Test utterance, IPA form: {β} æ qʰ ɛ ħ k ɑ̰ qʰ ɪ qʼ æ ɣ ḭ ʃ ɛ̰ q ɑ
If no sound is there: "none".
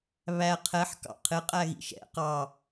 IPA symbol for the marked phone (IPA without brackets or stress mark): β